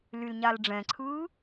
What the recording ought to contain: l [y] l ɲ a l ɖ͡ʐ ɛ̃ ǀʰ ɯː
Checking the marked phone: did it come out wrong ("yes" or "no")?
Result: no